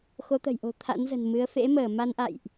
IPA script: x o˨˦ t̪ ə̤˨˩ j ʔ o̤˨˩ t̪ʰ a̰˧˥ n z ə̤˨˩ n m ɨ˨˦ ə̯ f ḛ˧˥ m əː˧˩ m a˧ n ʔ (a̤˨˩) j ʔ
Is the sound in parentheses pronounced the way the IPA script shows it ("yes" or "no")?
no